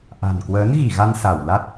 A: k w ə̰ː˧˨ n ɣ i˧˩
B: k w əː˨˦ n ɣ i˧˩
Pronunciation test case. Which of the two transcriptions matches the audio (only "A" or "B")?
B